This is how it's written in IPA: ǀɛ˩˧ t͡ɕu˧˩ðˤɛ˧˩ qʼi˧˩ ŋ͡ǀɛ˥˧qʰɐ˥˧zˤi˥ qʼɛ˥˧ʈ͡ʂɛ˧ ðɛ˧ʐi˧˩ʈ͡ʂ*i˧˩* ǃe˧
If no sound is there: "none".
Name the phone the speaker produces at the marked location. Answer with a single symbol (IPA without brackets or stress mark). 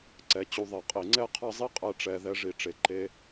e˧˩